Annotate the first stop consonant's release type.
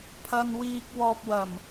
aspirated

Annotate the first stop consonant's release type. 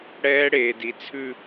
plain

